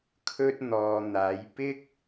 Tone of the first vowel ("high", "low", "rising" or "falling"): high